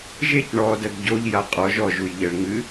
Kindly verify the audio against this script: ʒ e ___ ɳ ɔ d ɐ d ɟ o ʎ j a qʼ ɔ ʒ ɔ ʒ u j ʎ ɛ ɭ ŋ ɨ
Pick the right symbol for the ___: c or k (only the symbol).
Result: c